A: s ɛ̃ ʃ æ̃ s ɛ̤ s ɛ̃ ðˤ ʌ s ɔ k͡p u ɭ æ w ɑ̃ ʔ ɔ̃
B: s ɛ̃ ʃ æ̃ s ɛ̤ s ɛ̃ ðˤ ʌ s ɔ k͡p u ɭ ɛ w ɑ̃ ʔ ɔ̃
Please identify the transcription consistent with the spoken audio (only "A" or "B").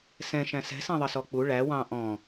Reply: A